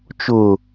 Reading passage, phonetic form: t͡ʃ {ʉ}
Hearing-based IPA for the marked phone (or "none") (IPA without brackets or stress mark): ʊ